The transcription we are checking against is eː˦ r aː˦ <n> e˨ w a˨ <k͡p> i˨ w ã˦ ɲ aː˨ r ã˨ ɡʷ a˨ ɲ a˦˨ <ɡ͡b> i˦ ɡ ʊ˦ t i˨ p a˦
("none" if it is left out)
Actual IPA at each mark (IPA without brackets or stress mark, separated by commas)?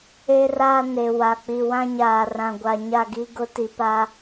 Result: n, k͡p, ɡ